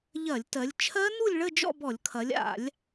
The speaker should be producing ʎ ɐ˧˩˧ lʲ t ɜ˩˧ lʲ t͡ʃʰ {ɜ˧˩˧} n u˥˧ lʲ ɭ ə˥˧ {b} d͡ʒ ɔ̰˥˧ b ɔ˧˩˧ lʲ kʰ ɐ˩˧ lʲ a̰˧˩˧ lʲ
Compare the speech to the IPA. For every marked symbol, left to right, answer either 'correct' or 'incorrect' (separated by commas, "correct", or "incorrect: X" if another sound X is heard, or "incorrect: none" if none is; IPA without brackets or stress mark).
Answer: incorrect: ɜ˦˥, incorrect: none